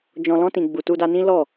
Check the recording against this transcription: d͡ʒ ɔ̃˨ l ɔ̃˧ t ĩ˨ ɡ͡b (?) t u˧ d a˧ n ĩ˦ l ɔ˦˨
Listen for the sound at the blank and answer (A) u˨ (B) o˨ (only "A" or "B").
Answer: A